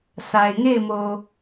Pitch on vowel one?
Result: low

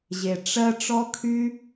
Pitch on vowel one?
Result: low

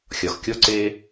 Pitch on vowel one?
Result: low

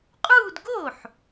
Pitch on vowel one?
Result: falling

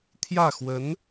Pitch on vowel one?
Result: falling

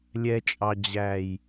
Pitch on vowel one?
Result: low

